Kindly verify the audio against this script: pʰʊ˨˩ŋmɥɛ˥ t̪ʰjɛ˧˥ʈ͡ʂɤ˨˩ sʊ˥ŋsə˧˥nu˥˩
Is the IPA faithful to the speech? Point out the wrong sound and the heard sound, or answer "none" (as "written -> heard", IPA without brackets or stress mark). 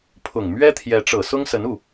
none